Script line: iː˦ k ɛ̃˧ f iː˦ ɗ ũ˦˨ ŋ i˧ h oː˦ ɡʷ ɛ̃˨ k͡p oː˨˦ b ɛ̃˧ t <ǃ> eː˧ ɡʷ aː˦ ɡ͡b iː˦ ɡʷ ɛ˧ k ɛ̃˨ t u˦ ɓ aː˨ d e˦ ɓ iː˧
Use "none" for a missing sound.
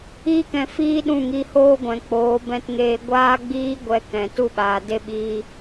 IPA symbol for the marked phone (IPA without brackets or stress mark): ŋ